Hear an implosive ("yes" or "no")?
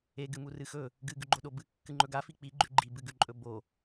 yes